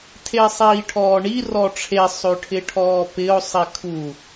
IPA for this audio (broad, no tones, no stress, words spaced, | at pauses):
tʰesˤiːʈʰɔːɳi rɔʈ͡ʂʰe sˤøʈʰɪʈʰɔːpɪo̯ sˤikʰu